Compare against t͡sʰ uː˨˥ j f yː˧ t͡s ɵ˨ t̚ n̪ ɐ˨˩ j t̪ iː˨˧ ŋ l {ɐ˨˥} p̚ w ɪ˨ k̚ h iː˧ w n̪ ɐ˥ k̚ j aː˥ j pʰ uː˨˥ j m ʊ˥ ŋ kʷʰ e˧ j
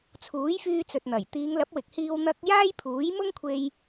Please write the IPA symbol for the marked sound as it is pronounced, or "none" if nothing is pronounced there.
ɐ˨˥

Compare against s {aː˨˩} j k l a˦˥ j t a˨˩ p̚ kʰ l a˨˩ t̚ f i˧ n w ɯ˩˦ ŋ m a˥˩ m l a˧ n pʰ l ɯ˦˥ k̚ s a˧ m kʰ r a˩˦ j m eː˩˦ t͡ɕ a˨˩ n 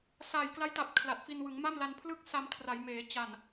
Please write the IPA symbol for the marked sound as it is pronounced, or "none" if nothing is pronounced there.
aː˨˩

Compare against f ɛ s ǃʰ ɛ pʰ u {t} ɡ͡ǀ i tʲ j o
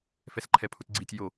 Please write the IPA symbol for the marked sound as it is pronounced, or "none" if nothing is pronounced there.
t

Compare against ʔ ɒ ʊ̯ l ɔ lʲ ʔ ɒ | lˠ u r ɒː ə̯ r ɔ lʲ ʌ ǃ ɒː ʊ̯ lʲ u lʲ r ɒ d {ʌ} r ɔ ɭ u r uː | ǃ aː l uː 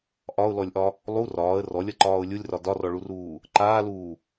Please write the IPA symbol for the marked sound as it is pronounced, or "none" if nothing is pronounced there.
ɒ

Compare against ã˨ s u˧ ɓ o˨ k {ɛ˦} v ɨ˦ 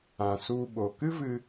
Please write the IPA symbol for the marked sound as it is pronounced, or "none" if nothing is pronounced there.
ɨ˦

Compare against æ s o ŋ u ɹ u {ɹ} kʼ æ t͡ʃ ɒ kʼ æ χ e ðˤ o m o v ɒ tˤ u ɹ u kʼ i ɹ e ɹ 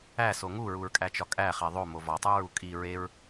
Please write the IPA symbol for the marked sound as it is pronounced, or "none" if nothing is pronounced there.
ɹ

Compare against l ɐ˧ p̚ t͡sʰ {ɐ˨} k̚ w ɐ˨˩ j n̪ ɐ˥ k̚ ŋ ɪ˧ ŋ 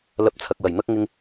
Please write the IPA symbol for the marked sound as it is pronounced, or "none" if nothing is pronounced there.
ɐ˨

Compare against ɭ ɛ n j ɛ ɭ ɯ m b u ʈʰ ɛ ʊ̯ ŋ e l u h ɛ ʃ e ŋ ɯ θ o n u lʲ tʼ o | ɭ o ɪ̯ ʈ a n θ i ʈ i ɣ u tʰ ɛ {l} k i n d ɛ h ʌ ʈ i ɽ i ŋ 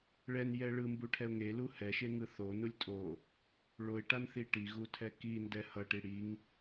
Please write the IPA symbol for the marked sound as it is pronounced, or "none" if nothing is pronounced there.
none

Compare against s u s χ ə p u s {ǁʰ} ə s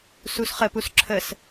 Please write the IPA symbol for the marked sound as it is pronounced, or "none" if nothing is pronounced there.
ǁʰ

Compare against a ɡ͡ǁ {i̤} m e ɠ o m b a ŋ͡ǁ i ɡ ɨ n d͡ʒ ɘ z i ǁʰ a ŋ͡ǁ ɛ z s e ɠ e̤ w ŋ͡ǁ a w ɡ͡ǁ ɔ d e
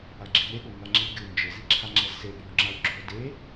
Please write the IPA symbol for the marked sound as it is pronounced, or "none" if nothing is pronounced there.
i̤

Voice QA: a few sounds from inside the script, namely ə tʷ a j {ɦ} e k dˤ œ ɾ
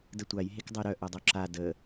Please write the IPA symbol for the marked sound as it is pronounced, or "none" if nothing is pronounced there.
ɦ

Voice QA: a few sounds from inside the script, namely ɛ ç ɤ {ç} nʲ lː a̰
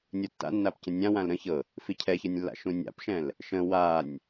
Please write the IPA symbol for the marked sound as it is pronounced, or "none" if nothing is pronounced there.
none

